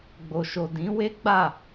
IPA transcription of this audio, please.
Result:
ɡ͡bo˨ʃo˨ dĩ˨˦we˦ɡ͡ba˦˨

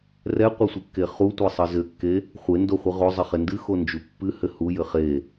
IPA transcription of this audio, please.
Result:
rɛqʷesʷɨkːe χutʷesˤɨ zɘkːe | χʷendoχʷɨ ʁozˤɘχe ndɨxond͡ʒu pːɨhɘ hujɘ χe

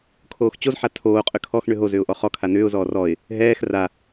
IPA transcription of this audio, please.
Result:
kʰoːxt͡ɕozħa tʰoːqʼʏ kʰɔxɳʏ ɦo zʏːʊ̯ʔɔχɔkʰa nʏːʊ̯zɔː rɔɪ̯ | ɦɛːx ra

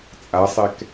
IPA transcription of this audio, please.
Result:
t͡sʼasˤɛk

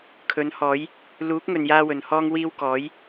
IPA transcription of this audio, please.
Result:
kʰɵ˨˥nhɔː˨˥j | luː˨˥k̚ŋɵ˨njaː˧ wɵ˨nhɔː˥ŋwiː˥w kɔː˨˥j

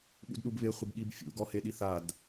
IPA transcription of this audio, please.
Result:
ɠṵdɗubβɪ χʷɪbɠibfʲṵ ɡɔheɗiθad

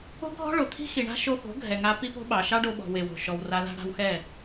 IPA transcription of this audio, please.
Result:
o̤˦ɡʱɔ̤˦ɭo˨t̪ʰi̤˦ xi˨ɳa̤˦ ʃo˧xo̤˨˦ ɡʱɛ˨ŋa˧ pi˦po̤˦ɓɑ˨ ʃɑ˦ɖo˧ɓɔ̤˨ we˨wo̤˨ʃɔ˨w ra˧la̤˦ ɽa̤˧wxɛ˦˨

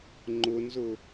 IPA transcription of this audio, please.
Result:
ŋ͡ǃʊnzʊ

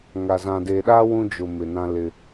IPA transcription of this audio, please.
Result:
ŋa˨ zã˨de˨ɗa˦ wũ˦d͡ʒʊ˨ mɪ˨nã˦lɪ˦

